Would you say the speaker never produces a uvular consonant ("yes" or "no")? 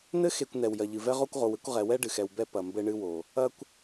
no